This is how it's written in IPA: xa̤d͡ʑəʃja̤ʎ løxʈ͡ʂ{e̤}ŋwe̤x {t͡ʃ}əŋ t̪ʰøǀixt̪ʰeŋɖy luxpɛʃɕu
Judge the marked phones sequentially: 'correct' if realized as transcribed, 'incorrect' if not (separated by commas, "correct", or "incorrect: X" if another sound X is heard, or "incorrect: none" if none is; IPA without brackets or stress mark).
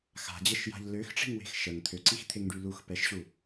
incorrect: i̤, incorrect: ʃ